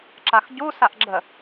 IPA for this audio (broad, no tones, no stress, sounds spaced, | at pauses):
ǁ a x ɟ u s a ʔ ɡ͡ǁ ə